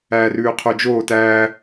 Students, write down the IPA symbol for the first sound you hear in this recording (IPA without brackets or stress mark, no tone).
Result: æː